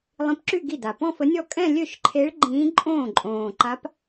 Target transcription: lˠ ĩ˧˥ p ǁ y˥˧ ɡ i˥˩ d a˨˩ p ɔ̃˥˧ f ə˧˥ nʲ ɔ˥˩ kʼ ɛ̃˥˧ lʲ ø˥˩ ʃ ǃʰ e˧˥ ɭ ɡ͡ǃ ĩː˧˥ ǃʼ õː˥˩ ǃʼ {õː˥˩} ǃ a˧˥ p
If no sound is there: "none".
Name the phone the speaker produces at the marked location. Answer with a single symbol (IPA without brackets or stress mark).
õː˨˩